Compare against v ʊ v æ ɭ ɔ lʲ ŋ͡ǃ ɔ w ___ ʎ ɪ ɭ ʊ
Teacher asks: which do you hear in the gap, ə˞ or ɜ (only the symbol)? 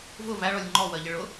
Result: ɜ